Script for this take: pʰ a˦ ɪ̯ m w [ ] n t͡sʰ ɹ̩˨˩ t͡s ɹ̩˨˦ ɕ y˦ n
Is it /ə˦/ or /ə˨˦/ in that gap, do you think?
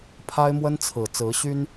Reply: ə˦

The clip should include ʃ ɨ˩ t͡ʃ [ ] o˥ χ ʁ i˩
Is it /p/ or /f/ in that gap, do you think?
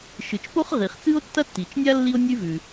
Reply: p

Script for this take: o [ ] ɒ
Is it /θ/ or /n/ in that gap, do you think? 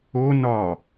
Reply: n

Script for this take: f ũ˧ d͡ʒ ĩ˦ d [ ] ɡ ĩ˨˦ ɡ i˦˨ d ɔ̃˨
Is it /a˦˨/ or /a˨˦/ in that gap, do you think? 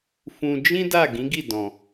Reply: a˦˨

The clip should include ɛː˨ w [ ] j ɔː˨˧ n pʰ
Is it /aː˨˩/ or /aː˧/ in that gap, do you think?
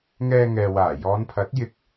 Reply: aː˨˩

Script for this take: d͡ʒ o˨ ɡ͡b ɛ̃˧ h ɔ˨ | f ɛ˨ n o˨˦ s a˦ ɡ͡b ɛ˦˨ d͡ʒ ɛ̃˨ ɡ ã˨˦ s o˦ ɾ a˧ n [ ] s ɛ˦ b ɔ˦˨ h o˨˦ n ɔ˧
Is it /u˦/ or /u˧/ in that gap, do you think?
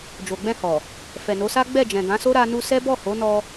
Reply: u˧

